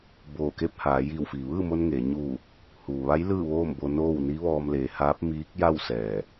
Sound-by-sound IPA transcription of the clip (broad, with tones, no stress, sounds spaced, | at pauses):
b oː˧˩ k e˥˨ p̚ h aː˩˧ j iː˧˩ w f iː˩ ʋ ɯː˥˨ m o˧ n ŋ eː˩˧ ɲ uː˧˩ | h uː˩ ʋ a˧˥ j l ɯː˥˨ ʋ oː˥˨ m b o˧ n oː˥˨ w n i˧˥ ʋ ɔː˧ m l eː˩˧ h aː˧˥ p̚ m iː˧˥ k̚ j a˥˨ w s ɛː˧˩